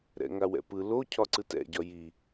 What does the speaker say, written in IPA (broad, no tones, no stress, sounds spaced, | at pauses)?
ɾ ɛ̰ ŋ a w ɛ̰ p ɯ l o cʰ ɒ ǀ ɯ t ɛ̰ ɟ ɒ j i